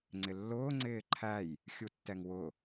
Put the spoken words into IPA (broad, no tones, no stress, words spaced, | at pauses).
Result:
ŋ͡ǀɪlːʊː ŋ͡ǀɪːǃʰæj | xʲutːɛŋwʊ